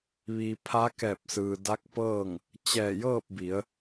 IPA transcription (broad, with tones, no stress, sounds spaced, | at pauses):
ʋ iː˩ pʰ a˧˥ k ɛː˧˩ p̚ s ɯː˩ d a˧˥ k̚ p ɤː˥˨ ŋ | t͡ɕ ɛː˧˩ j ɤː˥˨ p̚ b i˩˧ ə̯